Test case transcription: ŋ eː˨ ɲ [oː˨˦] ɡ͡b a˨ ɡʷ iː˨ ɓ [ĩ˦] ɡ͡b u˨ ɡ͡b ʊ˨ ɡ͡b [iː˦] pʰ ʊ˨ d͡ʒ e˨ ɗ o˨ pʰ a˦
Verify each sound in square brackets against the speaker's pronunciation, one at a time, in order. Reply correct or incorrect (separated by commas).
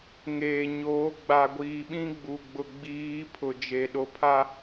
correct, correct, incorrect